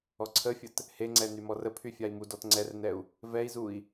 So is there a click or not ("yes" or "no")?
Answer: yes